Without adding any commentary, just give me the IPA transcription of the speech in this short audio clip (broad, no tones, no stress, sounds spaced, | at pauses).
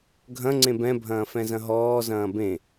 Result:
ɡʱ ɐ̃ ŋ͡ǀ ẽ b ɛ̃ bʱ ɐ̃ː f ɛ̃ z ɐ̃ ɦ ɔː z ɐ̃ː b ẽ